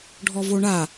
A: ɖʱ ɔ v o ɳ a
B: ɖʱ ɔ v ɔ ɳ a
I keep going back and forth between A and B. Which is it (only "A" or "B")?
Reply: A